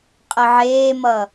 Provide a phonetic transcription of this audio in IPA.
qʼ ə ʕ eː m ʌ

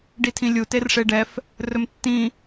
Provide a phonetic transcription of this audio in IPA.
ɖ i tʰ ĩ lʲ u t e r ʂ e ɖ ɛ f | r ɵ m tː ĩ

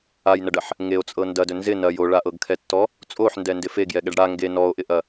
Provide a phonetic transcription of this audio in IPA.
a j n ɐ ɖ ɐ ħ | ŋ e o̯ t͡sʼ ɤ n d ɐ d ɵ n z ɪ n ɐ j o ɭ a ʔ ɤ ɡ kʰ ɛ tː ɔ | t͡sʼ o ħ n d ɛ n d ɪ f e ɡ j ɛ ɠ ɛ ɖ ɽ a ŋ ɡ e n ɔ o̯ ʔ ɪ ʔ ɐ

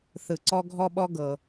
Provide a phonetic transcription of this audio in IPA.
θ ɯ˩ ǀ ɔ˧ ɡʱ ɔ˧ ɓ ɔ˧ ɡ ɤ˩

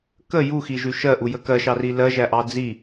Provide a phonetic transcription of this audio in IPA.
k ə j u x i ʒ ʉ ʃ ɜ ʔ u j ə k ɜ ʃ ɑ r i l ɜ ʒ æ ʔ ɑ d͡z i

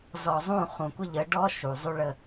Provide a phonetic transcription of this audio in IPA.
z ɔ˨ zˤ ũ˦˨ χ ũ˨ kʷ ə˦ ʎ ə˨˦ ɖ ɔ˦ ʃ u˨ zˤ u˦ ɭ ə˦

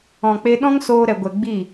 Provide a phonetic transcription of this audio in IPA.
ɔ̃˨ k͡p e˧ ɗ ɔ̃˦ ŋ s oː˧ ɾ ɛ˨ ɡʷ ɛ˨ ɡ͡b i˦˨

